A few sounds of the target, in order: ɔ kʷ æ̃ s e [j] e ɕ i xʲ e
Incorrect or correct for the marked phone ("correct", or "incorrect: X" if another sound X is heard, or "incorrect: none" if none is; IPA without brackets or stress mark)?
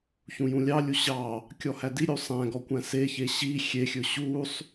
incorrect: ç